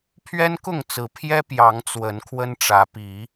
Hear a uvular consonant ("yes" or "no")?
no